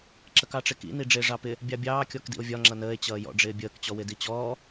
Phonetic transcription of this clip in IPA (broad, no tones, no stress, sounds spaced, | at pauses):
ǁ ə k ɑ ʈ͡ʂ ɪ k ḭ n i ɖ͡ʐ ɪː ʐ ɑ p ɪ | bʲ ɑ bʲ ɑː kʲ ɔ k d ḭ o̯ vʲ ɒ ŋ͡ǁ ʌ n əː e̯ t͡ɕ ʌː j ɔ̰ ɖ͡ʐ ɪː bʲ əː k t͡ɕ ɔ w ɪ d i t͡ɕ ɔː